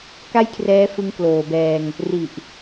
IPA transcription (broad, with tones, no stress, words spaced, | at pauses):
ka˥˩jkʰrɛː˦˥ fɯ˦˥ŋkloː˨˩bɛː˧ŋ | ri˨˩ʔ